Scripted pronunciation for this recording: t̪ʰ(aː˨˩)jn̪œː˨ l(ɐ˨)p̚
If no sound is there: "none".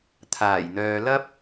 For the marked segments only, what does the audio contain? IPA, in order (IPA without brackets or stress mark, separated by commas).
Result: aː˨˩, ɐ˥